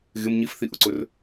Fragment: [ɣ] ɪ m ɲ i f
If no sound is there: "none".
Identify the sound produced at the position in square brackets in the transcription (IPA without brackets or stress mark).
ɣ